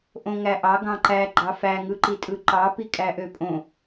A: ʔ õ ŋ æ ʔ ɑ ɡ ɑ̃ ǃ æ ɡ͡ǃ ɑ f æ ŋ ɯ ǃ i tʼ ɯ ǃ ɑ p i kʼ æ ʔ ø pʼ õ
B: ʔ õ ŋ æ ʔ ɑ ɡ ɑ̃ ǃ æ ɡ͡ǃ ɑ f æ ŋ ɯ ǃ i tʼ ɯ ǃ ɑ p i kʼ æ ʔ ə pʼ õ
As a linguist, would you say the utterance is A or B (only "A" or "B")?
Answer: A